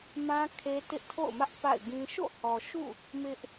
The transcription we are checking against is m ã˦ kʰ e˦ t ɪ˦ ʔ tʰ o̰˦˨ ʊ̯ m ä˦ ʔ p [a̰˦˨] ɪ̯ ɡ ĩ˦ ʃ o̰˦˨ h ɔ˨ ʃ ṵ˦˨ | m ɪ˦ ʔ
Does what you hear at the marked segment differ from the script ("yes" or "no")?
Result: no